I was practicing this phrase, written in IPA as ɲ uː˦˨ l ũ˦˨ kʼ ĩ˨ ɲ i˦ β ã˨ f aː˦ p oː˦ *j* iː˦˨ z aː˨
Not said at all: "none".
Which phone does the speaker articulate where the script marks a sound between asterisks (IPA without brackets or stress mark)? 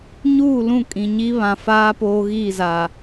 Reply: ɣ